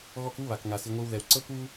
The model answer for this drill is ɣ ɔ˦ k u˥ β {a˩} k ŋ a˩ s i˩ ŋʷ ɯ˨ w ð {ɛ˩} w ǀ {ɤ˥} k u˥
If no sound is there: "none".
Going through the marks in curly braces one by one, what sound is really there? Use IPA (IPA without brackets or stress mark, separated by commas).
a˩, ɛ˩, ɤ˥